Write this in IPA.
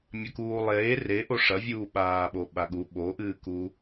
mʲ ɐ k uː lˠ eː r e ʔ o ʂ ɐ vʲ uː ɓ aː ɓ o ɓ a ɠ u ɓ o ʔ ɨː k u

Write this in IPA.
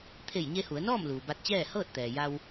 t̪ʰ e˧˩ j ɲ e˧ h u˩˧ ə̯ n ɔː˥˨ m l uː˩ b a˧ t̚ t͡ɕ ɛː˥˨ h ɤː˥˨ t̚ t̪ ɛː˩ j a˧ w

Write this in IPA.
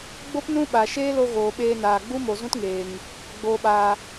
ɡ͡b o˦ p n ũ˦ ɓ a˨ ʃ eː˦ l o˧ ɣ oː˨ ɓ eː˧ n aː˨ ɡ͡b u˦ m o˨ z ũ˦ t ŋ eː˨ ŋ | ɡ͡b oː˧ ɓ aː˧

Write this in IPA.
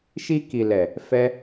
ʃ i˧ k i˨ l ɛ˨ | f ɛ˦

